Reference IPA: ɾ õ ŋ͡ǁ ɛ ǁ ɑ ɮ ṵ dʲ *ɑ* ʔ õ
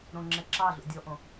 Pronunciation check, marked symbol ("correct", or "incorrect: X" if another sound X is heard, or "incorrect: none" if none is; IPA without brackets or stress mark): incorrect: ɔ